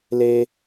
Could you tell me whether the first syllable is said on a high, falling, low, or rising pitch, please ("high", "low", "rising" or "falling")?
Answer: high